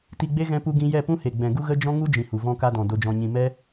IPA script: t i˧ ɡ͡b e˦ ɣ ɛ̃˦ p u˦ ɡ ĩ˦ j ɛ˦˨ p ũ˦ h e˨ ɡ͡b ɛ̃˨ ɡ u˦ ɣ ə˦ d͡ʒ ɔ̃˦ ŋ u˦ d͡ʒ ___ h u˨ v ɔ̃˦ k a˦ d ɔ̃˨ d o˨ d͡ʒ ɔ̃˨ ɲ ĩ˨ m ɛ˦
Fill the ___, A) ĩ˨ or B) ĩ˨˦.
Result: A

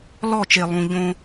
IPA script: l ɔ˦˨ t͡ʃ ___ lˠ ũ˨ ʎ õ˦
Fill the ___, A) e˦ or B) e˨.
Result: B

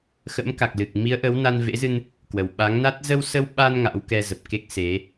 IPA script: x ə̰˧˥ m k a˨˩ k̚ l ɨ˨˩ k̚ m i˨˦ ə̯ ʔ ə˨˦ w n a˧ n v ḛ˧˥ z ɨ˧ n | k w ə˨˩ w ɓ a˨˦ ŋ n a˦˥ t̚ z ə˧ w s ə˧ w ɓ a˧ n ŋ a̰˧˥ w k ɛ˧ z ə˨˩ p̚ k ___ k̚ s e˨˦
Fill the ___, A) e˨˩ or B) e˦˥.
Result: B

